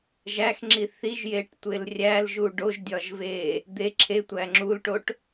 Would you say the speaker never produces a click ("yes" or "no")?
no